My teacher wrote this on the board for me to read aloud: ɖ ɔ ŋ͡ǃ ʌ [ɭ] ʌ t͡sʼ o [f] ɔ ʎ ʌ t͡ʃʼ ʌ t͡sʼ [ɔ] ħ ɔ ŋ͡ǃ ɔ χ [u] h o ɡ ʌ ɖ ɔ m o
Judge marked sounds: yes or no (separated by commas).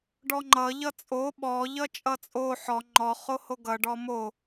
no, no, no, no